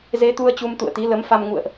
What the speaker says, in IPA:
z e˨˦ t̪ u˧ ə̯ t͡ɕ u˧ m t̪ ṵ˧˨ ə̯ t̪ i˨˦ l ə˨˦ m f a˧ m ŋ ṵ˧˨ ə̯ ʔ

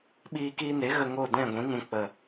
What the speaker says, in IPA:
ɓ iː˧ k iː˧ n e˨˦ ɣ ə˧ ŋ o˦˨ d ɛ̃˦˨ ɡʷ ĩ˨˦ ŋ ũ˨ k͡p ə˨

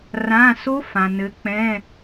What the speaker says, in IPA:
r ã˧˥˧ s o˦˥ f ã˩ n ɘ˨˦ k͡p ɛ̃˧˥˧

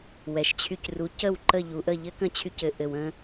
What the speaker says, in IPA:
w ɛ˩ ʃ t͡ɕʰ y˧ c r u˩˥ c ə˥˩ w ǃ ə˥˩ ʎ u˩ ʔ ə˥˩ ʎ ɘ˥ k ə̃˥˩ t͡ɕʰ y˧ c ɘ˩ ʔ ɘ˩ w ə̃˧

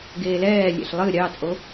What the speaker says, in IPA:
ɡ eː l ɛː lʲ ḛ ɬ lˠ ɨ ɾʲ ɑ t͡sʼ o

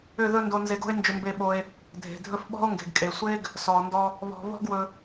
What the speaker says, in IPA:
ʏ˦˨ ð ɵ˦ n d o˧ n z e˧ ɡ o̤˦ e̯ n d͡ʒ ʏ˧ m b e˧ ɓ o˧ e̯ | dʱ e̤˨ dʱ ɵ˦ f ɓ ɔ̤˦ o̯ ŋ ɡ e̤˨ ɡ kʼ e˨ sʷ e˦ ɡ | s ɔ˨ n d ɔ˧ | β ɔ̤˨ β ɔ̤˦ ɡ w ɵ˧

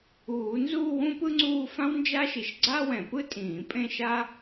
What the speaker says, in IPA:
uː˨˩˦ n z u˥˧ w ũ˥ p ɯ˥ ŋ͡ǀ uː˥˧ f ã˥ w n d͡ʒ a˥ ʃ i˧˩ ʃ ɡ͡ǀ a˥ w ɛ̃˨˩˦ p ɯ˥ tʼ ĩː˨˩˦ pʼ ẽ˥˧ ʃ a˥

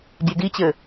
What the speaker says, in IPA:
dʲ e d i t͡ɕ ɘ

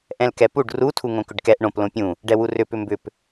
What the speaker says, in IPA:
ʔ ɛ̃ l k ɛ p u ɖ r u tʰ u ŋ õ k ʏ ɖ k ɛ ʔ ɳ õ p l õ pʲ ũ | ɖ ɛ w u r ʏ p ʏ m b ʏ p

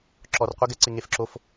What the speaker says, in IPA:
ǁ ɔ r qʷ i ɡ ɛ ǀ ɪ ŋ e f ǁ o f

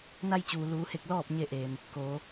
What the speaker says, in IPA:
n a˧ j t͡ɕ uː˩ l uː˩˧ h e˧˩ k̚ l ɔː˥˨ p̚ ɲ e˧ ʔ eː˩ m | k oː˩˧

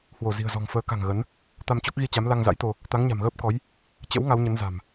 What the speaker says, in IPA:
h w o˧˩ z i̤˨˩ ə̯ z ɔ̤˨˩ ŋ f əː˨˦ k a̤˨˩ ŋ ɣ ə˨˦ n | t̪ a˧ m t͡ɕ o˦˥ k̚ ɣ i˧ t͡ɕ a˨˦ m l a˧ ŋ z a̰˧˥ j t̪ o˧ | t̪ a˨˦ ŋ ɲ a̤˨˩ m ɣ əː˦˥ p̚ k ɔ˨˦ j | t͡ɕ ə̰˧˥ w ŋ a˨˦ w ɲ ə˨˦ n z a̤˨˩ m

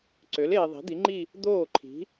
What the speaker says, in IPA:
ǀ ø˩˥ l eː˨ ðˤ i̤˩˥ d̪ i˩˥ ŋ͡ǃ i˥˧ | d̪ oː˥˩ ǃʰ i̤˩˥

